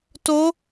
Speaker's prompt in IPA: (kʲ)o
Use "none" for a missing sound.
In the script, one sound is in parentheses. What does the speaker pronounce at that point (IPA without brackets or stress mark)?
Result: t